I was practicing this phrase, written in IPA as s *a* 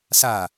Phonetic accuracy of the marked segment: correct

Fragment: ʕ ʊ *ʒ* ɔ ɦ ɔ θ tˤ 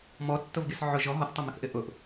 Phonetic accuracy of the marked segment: correct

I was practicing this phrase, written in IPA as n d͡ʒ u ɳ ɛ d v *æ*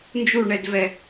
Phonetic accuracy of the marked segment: incorrect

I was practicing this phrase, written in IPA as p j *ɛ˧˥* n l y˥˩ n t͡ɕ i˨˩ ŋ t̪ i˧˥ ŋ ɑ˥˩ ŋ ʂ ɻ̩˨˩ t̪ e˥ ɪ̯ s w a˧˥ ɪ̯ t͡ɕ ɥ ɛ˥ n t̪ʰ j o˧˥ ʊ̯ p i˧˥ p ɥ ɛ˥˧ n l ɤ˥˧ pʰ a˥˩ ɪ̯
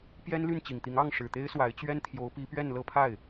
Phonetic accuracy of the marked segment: incorrect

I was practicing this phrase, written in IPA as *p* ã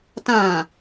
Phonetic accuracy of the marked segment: incorrect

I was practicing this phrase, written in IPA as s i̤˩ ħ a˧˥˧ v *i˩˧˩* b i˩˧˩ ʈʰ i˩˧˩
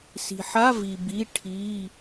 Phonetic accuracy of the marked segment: incorrect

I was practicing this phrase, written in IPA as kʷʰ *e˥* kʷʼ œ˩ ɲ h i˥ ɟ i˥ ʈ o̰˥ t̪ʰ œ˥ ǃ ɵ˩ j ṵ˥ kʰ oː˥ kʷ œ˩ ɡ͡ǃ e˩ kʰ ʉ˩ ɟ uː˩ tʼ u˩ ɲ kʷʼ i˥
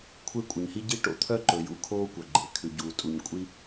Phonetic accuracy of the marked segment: correct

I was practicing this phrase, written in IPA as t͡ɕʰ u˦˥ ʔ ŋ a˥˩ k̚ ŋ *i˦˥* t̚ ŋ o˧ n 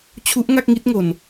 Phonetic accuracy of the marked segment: correct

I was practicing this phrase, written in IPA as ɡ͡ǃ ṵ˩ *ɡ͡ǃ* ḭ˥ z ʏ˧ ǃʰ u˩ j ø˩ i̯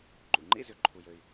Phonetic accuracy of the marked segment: incorrect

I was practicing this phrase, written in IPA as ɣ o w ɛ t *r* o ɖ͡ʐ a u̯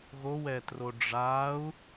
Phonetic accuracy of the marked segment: correct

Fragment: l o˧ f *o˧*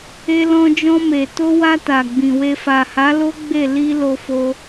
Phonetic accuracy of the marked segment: correct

